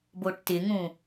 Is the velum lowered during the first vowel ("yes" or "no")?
no